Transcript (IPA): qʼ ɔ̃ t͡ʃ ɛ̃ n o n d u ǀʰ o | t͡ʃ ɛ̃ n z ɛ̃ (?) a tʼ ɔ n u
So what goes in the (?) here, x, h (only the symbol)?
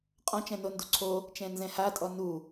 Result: h